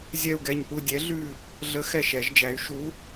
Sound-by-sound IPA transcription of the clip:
zʲɛ˦˨u̯ɡɛ˦˨ɲpu˦˨ dʲɛ˨˥ɮʉ˦˨ | ɮə˨˥ xɛ˦˨ʃɛ˨˩˦ʒd͡ʒæ˨˥y̯ ʃu˨˥

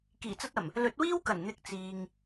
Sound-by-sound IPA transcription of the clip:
kiː˨˩t͡sɐ˧t̚ɐ˨˩m | lɵ˨˥t̚wiː˥wkɐ˨˩n n̪ɪ˨k̚ t͡siː˨ŋ

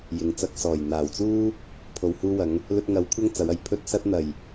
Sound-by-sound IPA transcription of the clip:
jɪ˨ŋt͡sɐ˧k̚sɔː˨˩j n̪aː˨˩wt͡suː˥ | pʰo˨whuː˧wɐ˨˧ŋ | lɵ˧t̚ŋɐ˨˧w kʷʰɐ˥ŋt͡sɐ˨˧wɐ˨˩j pʰɵ˧t̚sɐ˧t̚n̪ɐ˨˩j

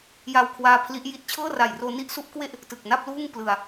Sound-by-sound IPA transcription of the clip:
ja˧wkʰwaː˦˥ pʰli˦˥ʔji˥˩t̚ t͡ɕʰɤː˥˩ra˨˩jroː˧ ni˦˥ʔsu˦˥ʔkwe˥˩ʔ | tɯ˨˩k̚na˥˩p̚luː˥˩ŋ plɯ˧a̯

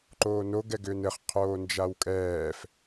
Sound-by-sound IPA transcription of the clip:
ǃoːno ɡɛɡʏːnɘχ qʰoːnd͡ʒawkʼɛːf

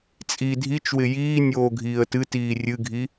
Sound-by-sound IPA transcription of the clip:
t͡sʼi dʱit͡ʃwɪ jiːnʲoːɡʱiːə̯ tɨtiː rʲɨɡʱi

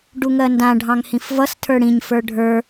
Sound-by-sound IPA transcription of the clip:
ɖuŋɜndã ɖʱɑ̃ŋhĩfvʌs tʰə˞ɽĩɲ fə˞ɖʱə˞

